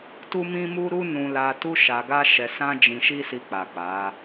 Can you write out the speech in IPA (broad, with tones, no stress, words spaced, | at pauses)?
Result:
tu˦mĩ˦mu˦ɾu˦ nũ˧la˧tu˦ ʃa˧ɡa˦ʃɛ˧ sã˦d͡ʒĩ˧ʃi˦ si˧k͡pa˨k͡pa˨˦